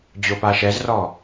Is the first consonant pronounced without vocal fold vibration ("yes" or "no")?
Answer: no